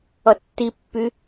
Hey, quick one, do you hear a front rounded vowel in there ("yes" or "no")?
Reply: yes